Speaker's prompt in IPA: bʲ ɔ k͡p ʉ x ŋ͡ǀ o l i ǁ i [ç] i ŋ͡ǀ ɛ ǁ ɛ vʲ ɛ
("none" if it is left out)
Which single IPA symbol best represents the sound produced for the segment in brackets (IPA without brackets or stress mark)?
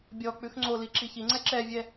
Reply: ç